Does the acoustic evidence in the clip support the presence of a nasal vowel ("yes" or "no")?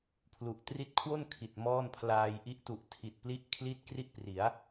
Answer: no